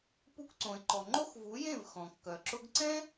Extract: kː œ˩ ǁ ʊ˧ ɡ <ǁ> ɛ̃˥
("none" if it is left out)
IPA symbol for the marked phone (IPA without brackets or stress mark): ǀ